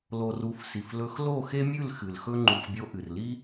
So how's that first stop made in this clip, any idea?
click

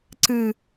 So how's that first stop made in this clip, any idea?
click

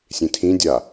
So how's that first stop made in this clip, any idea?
aspirated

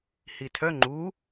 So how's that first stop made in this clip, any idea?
aspirated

